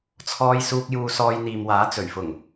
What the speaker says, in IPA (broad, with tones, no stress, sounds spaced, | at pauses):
t͡sʰ ɔː˧ j s uː˧ k̚ j uː˧ s ɔː˧ j n̪ iː˨ m w aː˨˥ t͡s ɵ˨˩ ɥ f ʊ˨˩ ŋ